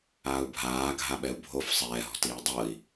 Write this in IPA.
aːu̯bʱaː ɡʱaɓɛu̯bʱof sˤɛːɦɔ̤ tiːdˤɤi̯

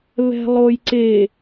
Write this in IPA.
βɛ̤lˠojǀe

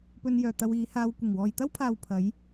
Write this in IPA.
pɵ˧njœː˨ t̪ɐ˧wiː˨˧haː˧w kʷɪ˨˩ŋwɔː˨jt̪ɐ˥wpʰaː˨w pʰɐ˨˧j

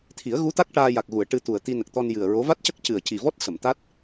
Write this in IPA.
t̪ʰi˨˩˦ə̯ ɣu˧˥t̪a˦˥k̚ ʈaː˧ja˨˩k̚ɣu˨˩˨ə̯ ʈɨ˧t̪u˨˩ə̯ t̪i˧nə˨˩k̚t̪ɔ˧n jɨ˨˩ə̯ɹo˧˥ va˦˥t̚cə˦˥k̚ cɨ˨˩ə̯ci˨˩vɔ˦˥t̚ sə˨˩˨mt̪a˦˥t̚

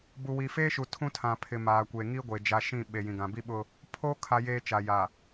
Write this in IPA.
bu˨wi˨feː˦ʃu˨ tʰũ˦tʰã˨pʰɪ˨ maː˨kʷe˨ ŋi˦ ɡʷeː˨d͡ʒa˦ ʃĩ˦˨ ɓe˨ jĩ˨ɡã˨bi˦ɓʊ˦ | pʰoː˦ kʰa˦jeː˦t͡ʃa˨ja˨

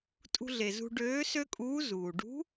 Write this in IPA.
tʼṳ˧ɮe˩zṳ˧ ɖøː˧˥ sø˥kʼuː˧˥ zuː˩ɖṳ˧˥

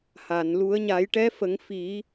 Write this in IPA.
ha˨˩˨n lu˨˩˦ə̯ɲa˨˩˦jʈɛ˧˥fə˨˩˦ŋ fi˨˩˦

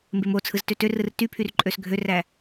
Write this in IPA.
mbemot͡sʰɯz tøtørɯr typʰyr ǃʼøsɡʱøræ

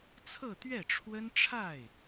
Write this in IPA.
t͡sʰɤ˥˧t̪ɥɛ˥˩ʈ͡ʂʰwə˥n ʈ͡ʂʰa˥˩ɪ̯

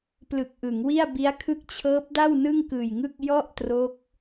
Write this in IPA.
plɯ˨˩k̚ʔɯ˩˦ŋwi˥˩a̯bi˦˥a̯ kʰɯ˦˥k̚t͡ɕʰɤː˦˥p̚da˥˩w nɯ˥˩ŋkɯː˨˩jŋɯ˥˩k̚ jɔ˥˩ʔtro˦˥k̚

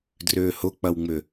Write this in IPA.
drʏːhʊk͡pɐwŋ͡mʏ

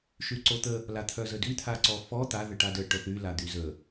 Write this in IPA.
ʃyǀot̪ə | lat̪ʰœzədy t̪ʰaǀɔfɔ t̪a ðəʈadə ʈœθy lad̪yzə

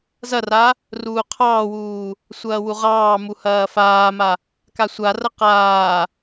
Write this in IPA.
zɐra | ruːqʰɑːwuː | sʷɐːwuʁɑːmu hɐːfaːma | kasʷarɐ qaː

